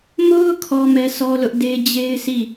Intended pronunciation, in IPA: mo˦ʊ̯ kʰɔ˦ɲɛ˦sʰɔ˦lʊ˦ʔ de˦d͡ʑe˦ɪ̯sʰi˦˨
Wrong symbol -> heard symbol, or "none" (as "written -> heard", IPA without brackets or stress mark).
ɲ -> m